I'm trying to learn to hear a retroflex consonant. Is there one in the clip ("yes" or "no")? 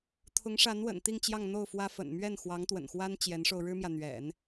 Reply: yes